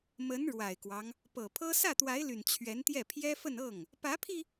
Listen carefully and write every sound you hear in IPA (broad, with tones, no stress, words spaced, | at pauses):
mə˧˥n ɻwa˨˩ɪ̯kwɑ˦ŋ | pɤ˨˩pʰɤ˥ sä˥˩t̪wa˧˥ɪ̯ly˨˩n t͡ɕʰɥɛ˧˥nt̪jɛ˥˩ pʰjɛ˥fə˥˧nɤ˥˩ŋ | pä˧˥pʰi˧